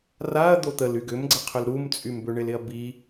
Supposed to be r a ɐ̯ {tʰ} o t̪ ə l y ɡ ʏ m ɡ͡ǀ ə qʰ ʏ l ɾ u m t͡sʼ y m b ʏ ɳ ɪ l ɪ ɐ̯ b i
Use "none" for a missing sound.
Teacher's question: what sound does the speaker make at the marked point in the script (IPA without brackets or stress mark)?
d̪